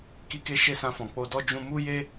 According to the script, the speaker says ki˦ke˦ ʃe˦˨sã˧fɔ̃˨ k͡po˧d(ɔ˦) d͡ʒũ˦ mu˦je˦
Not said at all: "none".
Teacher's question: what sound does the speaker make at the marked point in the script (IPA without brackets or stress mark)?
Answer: ɔ˦